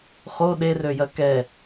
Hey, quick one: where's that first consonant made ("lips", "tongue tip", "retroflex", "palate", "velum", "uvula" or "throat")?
uvula